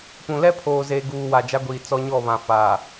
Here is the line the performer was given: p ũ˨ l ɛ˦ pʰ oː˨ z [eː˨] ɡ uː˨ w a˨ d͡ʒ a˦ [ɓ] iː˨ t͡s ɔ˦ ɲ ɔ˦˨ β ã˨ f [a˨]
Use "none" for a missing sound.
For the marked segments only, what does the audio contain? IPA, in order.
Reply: eː˨, ɡʷ, a˨

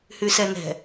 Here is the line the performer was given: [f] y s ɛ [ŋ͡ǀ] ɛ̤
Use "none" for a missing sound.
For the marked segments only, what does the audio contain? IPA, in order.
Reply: h, n

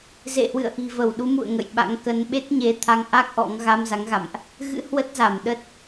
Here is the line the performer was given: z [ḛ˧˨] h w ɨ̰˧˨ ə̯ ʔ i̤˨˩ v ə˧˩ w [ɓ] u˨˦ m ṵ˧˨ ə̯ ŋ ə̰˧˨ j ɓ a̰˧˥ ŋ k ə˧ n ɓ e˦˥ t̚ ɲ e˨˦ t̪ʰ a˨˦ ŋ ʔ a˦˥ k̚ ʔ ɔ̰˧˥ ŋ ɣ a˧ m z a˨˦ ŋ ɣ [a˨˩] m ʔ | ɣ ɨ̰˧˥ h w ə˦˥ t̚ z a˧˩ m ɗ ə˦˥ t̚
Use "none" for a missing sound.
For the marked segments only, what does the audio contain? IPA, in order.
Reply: ḛ˧˨, ɗ, a̰˧˨

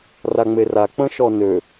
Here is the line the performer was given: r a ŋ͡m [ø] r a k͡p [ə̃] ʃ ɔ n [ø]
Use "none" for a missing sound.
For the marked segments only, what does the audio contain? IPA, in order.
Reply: e, ə̃, ø

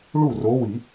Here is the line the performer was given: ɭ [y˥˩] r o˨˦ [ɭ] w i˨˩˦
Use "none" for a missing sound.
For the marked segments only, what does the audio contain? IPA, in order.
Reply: u˥˩, none

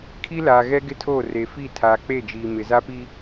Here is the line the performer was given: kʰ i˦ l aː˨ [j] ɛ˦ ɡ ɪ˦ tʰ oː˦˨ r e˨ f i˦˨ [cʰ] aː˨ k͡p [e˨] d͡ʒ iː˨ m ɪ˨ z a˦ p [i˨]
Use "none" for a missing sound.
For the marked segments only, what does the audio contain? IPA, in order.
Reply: ɣ, tʰ, e˦˨, i˦

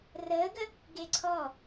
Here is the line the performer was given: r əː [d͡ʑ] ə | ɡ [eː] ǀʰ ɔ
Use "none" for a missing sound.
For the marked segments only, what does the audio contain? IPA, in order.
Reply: ɡ, e

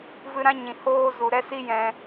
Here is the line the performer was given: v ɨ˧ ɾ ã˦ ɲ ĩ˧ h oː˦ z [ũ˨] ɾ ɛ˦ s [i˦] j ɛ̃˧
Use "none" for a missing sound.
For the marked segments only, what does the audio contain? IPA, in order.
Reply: u˨, i˦

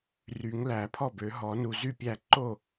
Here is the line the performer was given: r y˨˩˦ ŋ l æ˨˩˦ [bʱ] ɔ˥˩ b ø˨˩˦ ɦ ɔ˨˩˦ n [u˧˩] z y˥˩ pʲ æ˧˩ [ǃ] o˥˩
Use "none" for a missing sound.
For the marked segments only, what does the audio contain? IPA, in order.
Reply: pʰ, u˧˩, ǃ

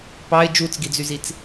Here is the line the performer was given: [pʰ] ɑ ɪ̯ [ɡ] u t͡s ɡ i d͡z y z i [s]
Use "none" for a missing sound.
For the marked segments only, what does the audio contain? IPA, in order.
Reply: p, d͡ʒ, t͡s

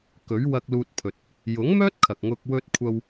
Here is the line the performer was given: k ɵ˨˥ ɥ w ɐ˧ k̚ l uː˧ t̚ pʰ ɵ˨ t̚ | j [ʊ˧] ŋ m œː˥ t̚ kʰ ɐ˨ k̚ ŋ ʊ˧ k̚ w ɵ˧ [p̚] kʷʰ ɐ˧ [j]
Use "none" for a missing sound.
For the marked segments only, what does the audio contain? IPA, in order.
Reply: ʊ˨˥, t̚, w

